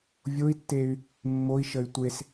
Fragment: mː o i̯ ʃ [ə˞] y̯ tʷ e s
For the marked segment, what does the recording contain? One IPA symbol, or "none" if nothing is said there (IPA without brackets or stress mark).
ə